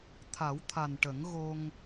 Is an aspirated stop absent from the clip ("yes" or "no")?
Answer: no